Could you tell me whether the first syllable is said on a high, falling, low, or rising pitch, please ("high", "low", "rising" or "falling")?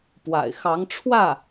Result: low